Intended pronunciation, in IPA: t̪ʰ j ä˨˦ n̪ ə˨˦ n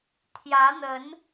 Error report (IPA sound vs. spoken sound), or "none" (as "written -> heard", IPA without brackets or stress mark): none